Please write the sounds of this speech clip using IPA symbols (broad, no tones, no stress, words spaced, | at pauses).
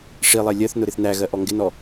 ʂilˠɛ lʲɜθnʊ ɾɪθnæɣɜ ʔɔŋɡɪnɔ